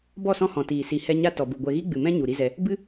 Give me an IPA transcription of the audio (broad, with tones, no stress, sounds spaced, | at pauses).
b ɔ˦˨ s ɔ̃˦ h ɔ̃˨ t iː˨ s i˨ h ɛ˧ ɲ a˦ t ɔ˨ b u˨ ɡʷ ɛ˧ ɣ i˦ ɡ͡b ɨ˨ m ɛ̃˦ ɲ u˨ ɾ i˦ z ɛ˧ | b ɨ˦